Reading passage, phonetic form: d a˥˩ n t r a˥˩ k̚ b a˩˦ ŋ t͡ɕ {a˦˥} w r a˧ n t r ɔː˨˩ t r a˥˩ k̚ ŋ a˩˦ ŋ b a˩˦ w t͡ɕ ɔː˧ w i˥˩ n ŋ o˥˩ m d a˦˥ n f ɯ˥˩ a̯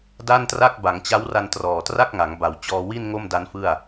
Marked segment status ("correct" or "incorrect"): correct